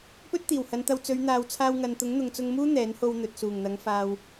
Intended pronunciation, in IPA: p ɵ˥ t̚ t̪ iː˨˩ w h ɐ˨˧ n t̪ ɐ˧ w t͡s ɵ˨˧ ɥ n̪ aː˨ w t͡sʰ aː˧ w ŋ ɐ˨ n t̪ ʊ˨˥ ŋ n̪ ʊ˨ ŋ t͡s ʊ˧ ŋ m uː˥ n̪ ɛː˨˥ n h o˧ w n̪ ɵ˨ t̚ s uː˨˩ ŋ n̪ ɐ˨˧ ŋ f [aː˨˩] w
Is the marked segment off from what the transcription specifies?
yes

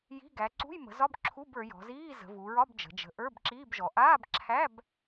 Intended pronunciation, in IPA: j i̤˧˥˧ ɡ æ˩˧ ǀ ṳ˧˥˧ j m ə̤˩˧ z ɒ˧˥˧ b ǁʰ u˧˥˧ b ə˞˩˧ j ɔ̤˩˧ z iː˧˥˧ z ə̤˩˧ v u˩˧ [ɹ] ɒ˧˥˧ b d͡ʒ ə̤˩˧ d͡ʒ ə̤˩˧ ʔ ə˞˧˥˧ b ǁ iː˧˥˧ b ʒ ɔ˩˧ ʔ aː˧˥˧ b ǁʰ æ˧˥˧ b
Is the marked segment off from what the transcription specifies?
no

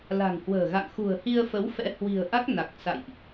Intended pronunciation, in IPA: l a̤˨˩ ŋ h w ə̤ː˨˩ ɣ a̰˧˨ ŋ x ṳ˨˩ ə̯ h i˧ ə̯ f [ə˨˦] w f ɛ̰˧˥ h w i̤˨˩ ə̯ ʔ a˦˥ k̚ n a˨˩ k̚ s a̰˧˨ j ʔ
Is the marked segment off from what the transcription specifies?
no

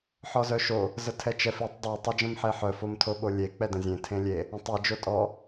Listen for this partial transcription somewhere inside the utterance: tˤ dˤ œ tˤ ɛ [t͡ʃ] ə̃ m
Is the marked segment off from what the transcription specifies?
yes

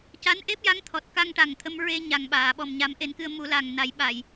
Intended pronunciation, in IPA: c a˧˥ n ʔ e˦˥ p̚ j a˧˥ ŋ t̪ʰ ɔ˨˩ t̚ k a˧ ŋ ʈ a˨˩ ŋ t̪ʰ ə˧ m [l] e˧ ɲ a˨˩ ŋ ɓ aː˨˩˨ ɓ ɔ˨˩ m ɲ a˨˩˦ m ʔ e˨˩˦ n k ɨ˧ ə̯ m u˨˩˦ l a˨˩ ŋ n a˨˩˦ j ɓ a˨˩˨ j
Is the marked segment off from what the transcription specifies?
yes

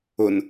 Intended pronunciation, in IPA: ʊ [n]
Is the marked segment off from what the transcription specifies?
no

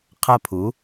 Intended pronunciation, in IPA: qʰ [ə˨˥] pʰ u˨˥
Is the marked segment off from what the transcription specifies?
yes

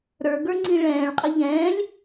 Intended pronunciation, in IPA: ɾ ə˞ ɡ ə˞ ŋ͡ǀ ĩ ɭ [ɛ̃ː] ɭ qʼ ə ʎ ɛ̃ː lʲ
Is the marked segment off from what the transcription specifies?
no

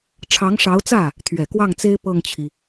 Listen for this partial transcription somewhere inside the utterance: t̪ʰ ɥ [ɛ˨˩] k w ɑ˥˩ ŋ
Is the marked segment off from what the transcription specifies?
no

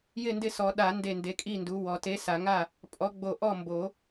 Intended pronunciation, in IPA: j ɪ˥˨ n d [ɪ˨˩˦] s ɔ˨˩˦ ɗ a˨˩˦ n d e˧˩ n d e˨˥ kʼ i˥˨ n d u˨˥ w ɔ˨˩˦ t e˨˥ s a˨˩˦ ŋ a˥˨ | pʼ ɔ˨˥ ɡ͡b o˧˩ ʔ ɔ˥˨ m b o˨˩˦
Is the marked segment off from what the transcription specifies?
yes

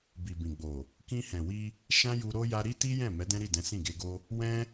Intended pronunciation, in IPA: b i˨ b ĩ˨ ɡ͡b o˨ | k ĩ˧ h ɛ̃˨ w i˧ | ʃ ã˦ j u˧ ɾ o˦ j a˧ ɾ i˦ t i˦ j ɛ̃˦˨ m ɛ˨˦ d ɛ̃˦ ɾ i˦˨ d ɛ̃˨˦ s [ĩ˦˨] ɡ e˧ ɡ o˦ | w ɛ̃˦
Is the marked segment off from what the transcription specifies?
no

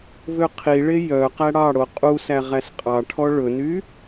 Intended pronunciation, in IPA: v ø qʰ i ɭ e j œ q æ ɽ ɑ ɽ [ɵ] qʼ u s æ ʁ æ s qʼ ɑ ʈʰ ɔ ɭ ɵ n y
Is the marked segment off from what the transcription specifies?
yes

